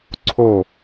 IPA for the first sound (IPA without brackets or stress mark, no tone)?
ǀʰ